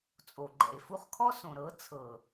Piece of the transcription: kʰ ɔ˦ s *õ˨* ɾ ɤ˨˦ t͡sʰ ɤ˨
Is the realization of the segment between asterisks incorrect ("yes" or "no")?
no